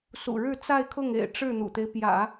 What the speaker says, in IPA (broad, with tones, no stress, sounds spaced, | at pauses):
s ṵ˨˩ ɻ ɻ̩˥˧ t͡s a˥˧ ɪ̯ kʰ ʊ˥˩ ŋ ḛ˨˩ ɪ̯ ʈ͡ʂ ɻ̩˥˩ n̪ ṵ˨˩ t̪ e˦ ɪ̯ p j ä̰˨˩˦